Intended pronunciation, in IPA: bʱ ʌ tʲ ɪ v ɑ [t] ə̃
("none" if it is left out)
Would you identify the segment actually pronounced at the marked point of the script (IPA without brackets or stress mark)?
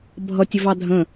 dʱ